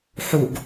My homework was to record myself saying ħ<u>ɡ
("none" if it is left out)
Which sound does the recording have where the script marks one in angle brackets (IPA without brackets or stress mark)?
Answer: u